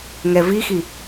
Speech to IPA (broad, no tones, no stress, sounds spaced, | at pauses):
ŋ ɛ v i x i